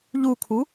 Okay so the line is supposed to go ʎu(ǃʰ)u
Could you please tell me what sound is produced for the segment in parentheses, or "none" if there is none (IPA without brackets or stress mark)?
kʰ